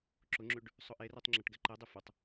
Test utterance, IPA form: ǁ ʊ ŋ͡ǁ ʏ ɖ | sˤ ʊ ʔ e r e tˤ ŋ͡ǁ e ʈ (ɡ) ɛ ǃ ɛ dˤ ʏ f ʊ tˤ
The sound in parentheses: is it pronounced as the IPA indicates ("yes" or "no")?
yes